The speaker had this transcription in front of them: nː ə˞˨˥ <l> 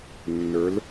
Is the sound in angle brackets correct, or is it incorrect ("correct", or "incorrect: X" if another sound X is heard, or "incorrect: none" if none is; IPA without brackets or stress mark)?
correct